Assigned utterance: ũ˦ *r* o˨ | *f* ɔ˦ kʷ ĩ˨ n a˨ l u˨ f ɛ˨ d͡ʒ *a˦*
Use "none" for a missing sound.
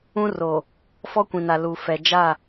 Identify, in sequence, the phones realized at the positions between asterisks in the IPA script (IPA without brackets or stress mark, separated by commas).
r, f, a˦˨